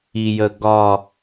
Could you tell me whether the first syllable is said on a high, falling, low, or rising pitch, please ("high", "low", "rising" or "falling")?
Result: low